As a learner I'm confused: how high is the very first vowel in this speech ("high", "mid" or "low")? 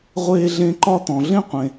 mid